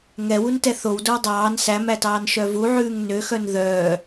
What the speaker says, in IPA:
ŋ ɛ w u n t ɛ θ o w d o w dˤ ɑː n s æ m æ t ɑː n ʃ œ v u ʕ ʉː ŋ n ø x œ n ð œː

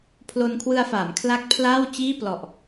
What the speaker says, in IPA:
pʰ l o˧ n kʰ w ɯ˧ a̯ f aː˩˦ m kʰ l a˦˥ k̚ pʰ l aː˥˩ w t͡ɕ iː˥˩ p l ɔ˨˩ ʔ

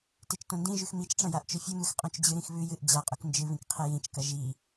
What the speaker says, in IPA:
t e t͡ʃ t õ n d ĩ ʒ ʉ x m i t͡ʃ ʈ͡ʂ ɐ̃ j a ʔ t͡ʃ ɵ fʲ u m ɨ x qʼ õ t͡ʃ d͡ʑ ɨ ɾ ĩ x β ʉ j ɨ ʔ d͡ʑ a qʼ u k n d͡ʒ ɨ β ĩ k qʰ e j ĩ t͡ʃ k ɐ ʒ i

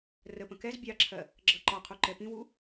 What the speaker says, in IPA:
r ə p ə̃ k ɛ z bʲ ɑ ǁʰ ɜ | ɡ͡ǁ ʌ ǃ ɒ qʰ u ǃ ɛ p ĩ w u

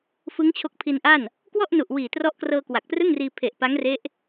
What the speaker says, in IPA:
f ɯ˦˥ ŋ t͡ɕʰ o˦˥ k̚ pʰ i˧ n ʔ a˥˩ n | k w ɔ˥˩ ʔ n u˨˩ ʔ w iː˨˩ t r ɔ˦˥ ʔ k r ɤː˧ k w a˨˩ k̚ p r ɯ˥˩ ŋ r iː˧ pʰ e˨˩ ʔ p a˦˥ ŋ r e˦˥ ʔ

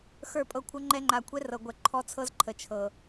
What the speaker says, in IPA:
x ə˞˦˨ pʼ ɤ˦ kʷʰ ɤ˦ ŋ͡ǃ ɛ˦ ŋ͡ǃ a˨ kʷʰ ɛ˦ r ɤ˨ ɡʷ ɛ˨ ǃʰ ɔ˦ t͡sʰ ɤ˦ z ǃʰ ə˨ t͡ʃʰ ɤ˨

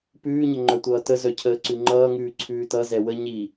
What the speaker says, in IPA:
p ʉː ɲ ə ŋ͡ǃ œ tʷ ʌː t ə z œ cʰ əː ǀ ʉ ŋ͡ǃ ʌː ŋ ʉː ǀʰ ʉː t ʌ z ɛ w ə ɲ i

